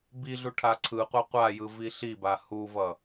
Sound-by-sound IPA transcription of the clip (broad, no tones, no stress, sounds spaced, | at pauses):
b i ɮ u ʈʰ a ǀʰ ɯ qʷ a qʷ a j ɯ v i ɬ i b a h u v ʌ